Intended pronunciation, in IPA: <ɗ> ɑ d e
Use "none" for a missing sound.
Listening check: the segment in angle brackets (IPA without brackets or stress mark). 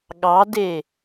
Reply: ɠ